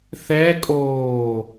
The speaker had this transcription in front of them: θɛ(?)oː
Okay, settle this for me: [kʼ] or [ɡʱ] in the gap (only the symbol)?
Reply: kʼ